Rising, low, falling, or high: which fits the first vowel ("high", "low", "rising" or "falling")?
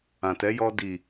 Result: low